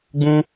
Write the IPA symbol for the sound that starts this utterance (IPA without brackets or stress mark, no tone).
ɡ͡b